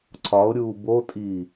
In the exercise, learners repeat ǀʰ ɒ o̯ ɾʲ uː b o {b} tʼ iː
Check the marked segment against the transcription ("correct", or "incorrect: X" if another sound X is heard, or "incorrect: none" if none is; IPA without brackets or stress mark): incorrect: none